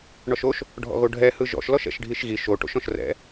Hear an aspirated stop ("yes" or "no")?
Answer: no